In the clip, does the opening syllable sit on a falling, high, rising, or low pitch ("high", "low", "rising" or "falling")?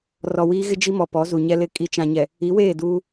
low